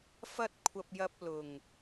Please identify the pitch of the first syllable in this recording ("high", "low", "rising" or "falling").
high